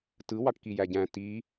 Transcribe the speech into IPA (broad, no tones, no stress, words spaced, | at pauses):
tɯ wɑʈkijæɟæ̃ ti